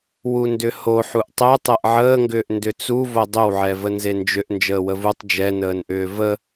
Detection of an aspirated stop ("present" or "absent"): absent